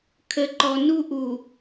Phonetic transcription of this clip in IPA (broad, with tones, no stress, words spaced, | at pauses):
kʰə˨ǃɔ˨nu˦ ʔu˨